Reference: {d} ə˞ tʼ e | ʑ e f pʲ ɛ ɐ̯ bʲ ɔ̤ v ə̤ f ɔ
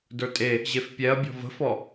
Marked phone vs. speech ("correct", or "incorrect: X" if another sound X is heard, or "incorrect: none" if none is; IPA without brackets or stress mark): correct